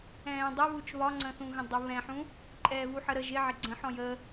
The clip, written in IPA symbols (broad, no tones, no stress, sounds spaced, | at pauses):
ɛ̃ː dˤ ɛ β u t͡ʃ β ɒ ŋ͡ǀ ə̃ θ ũ ɣ ə̃ dˤ ə β ɛ̃ ħ ũ | ǃʼ ɛː β u ħ ə ɾ ə ʒ ɪ ʕ ɪ ɡ͡ǀ ə̃ ħ ɔ̃ j ə